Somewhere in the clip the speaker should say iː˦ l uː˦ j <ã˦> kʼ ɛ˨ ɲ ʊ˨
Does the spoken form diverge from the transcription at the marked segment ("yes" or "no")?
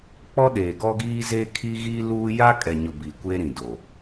yes